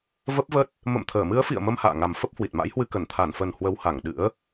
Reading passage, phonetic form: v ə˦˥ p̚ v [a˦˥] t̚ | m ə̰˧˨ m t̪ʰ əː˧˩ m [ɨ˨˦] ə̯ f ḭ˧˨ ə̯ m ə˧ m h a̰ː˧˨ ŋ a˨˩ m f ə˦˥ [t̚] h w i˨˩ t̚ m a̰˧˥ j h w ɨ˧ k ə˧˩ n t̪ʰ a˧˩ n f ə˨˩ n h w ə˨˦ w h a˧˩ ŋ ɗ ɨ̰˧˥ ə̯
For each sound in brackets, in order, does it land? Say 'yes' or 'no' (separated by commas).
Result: no, yes, no